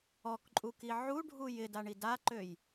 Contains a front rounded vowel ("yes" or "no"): yes